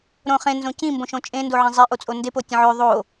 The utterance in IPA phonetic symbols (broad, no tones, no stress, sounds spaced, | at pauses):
ɾ õ χ ẽ n z õ c ĩ m b õ ʃ õ t͡ʃʼ ẽ n d o ʕ ẽ zˤ i ʔ o t͡sʼ o n d e p o tʲ ẽ ʕ ø ðˤ o